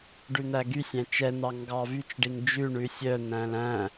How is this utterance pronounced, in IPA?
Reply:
ɖ ʉ n̪ æ ɡ y sʲ æ̃ t͡ʃ ɛ n̪ ɑ ŋ ɡ ɑ v y t͡ʃ ɖ i ŋ d͡ʒ ʉ ɳ ʉ sʲ œ n̪ æ̃ l æ̃

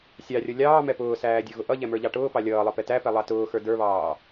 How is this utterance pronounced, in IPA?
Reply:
sʲ ɑ rʲ ʌ lʲ ɑː m ɛ p ʊː s æː dʲ ə˞ ɣ ʊ ʔ ʌ ʎ ɛ m ə˞ ʎ ɑ ʈ ʊː p ɑ lʲ ʌː lˠ ʌ p ɛ t æ p ɛ lˠ ɑ t ʊː x ə˞ d ə˞ β ɑː

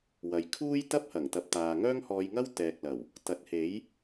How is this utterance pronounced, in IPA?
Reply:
w ɐ˨ j kʰ uː˥ j t̪ ɐ˥ p̚ h ɐ˨˩ ŋ t̪ ɐ˨ p̚ t̪ aː˨ ŋ œː˥ ŋ h ɔː˧ j ŋ ɐ˥ w t̪ ɛː˨ k̚ l ɐ˨˩ w | t̪ ɐ˨˥ t̚ h e˨˥ j

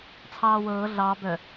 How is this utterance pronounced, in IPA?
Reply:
t͡sʰ ɑː w ɤː ɮ ɑ b œ

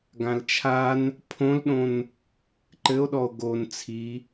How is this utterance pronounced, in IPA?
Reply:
ɡ ã l t͡ʃʰ a n | pʰ õ l ɗ õ n | ǃ ɘ o̯ ɗ ɔ o̯ ɡ o n t͡sʰ i

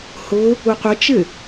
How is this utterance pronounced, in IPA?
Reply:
h ʊ | u qʷ ɪ t͡ʃ ɪ

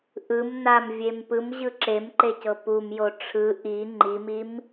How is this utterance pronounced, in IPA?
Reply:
ʔ ɯ m n a m vʲ e m p ɯ m ʑ ɯ ǁ e m ǃ e c ɤ p u m j o ʈ͡ʂʰ ɯ ʔ i ŋ͡ǃ i m i m

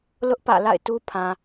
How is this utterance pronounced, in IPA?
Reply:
l ʊ˦ ʔ p ä̰˦˨ l a̰˦˨ ɪ̯ t u˦ pʰ ã˨

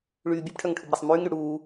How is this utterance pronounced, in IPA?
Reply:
ɭ yː bʲ u p ʈʰ œ ŋ ʈʰ u b ɾ ɛ sˤ m yː ŋ ɾ y ɽ uː

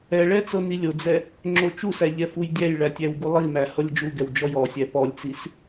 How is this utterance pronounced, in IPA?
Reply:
ɛ ɭ ɛ t͡s ɤ n i lʲ o d͡z ɛ | ŋ͡ǁ o t͡ʃ u s æ ʎ ɛ f u j dʲ æ j ɭ æ tʲ æ w ɡ u lˠ i m æ h ɤ lʲ d͡ʒ u ɡ ɛ w d͡ʒ ɔ j ɔ sʲ æ p ɔ lʲ t͡s i s

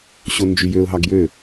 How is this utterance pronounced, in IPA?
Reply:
ɕ o n d͡ʒ y j ø ʊ̯ ɦ ɑ ɡ j ø

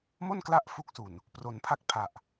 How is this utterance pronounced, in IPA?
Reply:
m o˥˩ n k l a˦˥ ʔ f u˥˩ k̚ s u˨˩ n | p r o˩˦ n pʰ a˦˥ k̚ pʰ a˨˩ ʔ

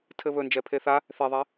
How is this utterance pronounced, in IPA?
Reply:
tʰ ɘ β ɵ n d͡ʒ ɛ pʰ e θ a | θ e ðˤ ɛ

